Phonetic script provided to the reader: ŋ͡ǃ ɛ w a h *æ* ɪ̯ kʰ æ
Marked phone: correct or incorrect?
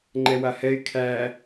incorrect